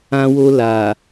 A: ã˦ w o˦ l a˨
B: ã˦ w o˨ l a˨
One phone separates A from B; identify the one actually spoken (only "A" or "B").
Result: A